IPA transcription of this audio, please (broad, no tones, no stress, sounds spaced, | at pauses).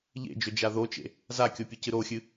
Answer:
ʎ ḛ d͡ʒ ɵ d͡ʒ a ð o t͡ʃ ḛ | z a kʲ o pʲ ɨ c ɨ ɾ o xʲ ɨ